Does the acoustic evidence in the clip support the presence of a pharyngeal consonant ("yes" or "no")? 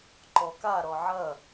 yes